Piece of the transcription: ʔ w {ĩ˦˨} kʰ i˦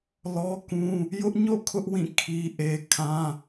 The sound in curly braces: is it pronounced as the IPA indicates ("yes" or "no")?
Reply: yes